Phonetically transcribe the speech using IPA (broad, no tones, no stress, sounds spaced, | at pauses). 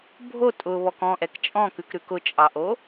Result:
bʱ o tʼ ʊ β ɔ k ɔ̃ ʔ ɛ k t͡ʃʼ ɔ̃ k ʉ k ɾ ʉ k ʊ t͡ʃʼ ɑ ʔ o